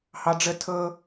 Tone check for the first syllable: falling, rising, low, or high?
high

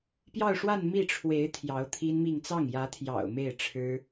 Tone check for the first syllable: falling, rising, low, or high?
falling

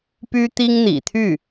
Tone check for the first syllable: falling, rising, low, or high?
high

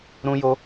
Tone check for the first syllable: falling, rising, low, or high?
high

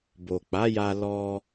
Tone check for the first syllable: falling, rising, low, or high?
low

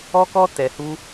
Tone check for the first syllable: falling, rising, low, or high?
high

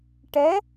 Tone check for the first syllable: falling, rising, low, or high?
rising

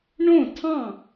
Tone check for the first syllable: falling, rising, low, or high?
falling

